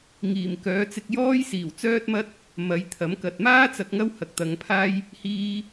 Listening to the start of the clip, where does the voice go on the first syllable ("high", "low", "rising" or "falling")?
low